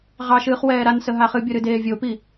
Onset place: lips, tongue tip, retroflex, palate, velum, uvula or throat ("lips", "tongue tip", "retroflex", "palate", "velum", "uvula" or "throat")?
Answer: uvula